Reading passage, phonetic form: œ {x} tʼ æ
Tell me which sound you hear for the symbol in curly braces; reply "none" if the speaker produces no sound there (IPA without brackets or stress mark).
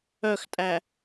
x